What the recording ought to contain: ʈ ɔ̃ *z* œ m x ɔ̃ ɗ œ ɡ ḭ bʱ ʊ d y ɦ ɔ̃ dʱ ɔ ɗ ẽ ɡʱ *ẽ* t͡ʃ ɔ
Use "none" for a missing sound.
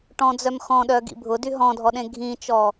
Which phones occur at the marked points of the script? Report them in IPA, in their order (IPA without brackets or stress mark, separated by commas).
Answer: d͡z, ĩ